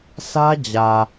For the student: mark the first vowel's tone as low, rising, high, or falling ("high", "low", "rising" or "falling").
high